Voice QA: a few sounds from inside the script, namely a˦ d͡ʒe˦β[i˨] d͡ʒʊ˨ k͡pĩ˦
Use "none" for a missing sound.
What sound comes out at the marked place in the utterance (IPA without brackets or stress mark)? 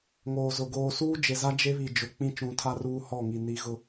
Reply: i˨